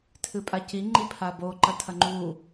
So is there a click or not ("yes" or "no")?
yes